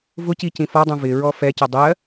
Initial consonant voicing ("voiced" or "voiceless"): voiced